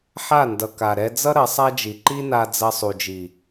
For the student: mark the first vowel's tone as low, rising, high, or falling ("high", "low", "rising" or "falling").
falling